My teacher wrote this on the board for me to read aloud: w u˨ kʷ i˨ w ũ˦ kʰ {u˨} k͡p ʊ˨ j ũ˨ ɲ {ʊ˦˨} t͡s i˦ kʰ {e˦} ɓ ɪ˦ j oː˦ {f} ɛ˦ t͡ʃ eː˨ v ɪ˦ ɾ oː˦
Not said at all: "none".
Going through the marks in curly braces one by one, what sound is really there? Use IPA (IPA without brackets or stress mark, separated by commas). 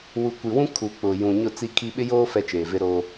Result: u˨, ʊ˦˨, i˦, f